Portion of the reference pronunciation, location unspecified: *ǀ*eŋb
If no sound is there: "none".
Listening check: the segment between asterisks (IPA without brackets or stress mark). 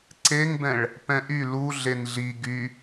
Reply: ǀ